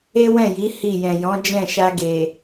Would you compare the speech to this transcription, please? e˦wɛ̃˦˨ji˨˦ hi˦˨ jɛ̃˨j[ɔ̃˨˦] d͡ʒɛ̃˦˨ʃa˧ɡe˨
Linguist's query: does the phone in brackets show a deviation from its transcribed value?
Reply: no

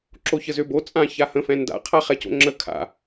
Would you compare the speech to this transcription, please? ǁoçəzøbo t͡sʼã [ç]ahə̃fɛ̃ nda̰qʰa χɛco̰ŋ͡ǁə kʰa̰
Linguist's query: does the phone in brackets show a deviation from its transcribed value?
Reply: no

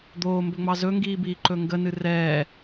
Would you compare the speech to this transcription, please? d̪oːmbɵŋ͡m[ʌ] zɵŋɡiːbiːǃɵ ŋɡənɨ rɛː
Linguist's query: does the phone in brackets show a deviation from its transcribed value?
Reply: yes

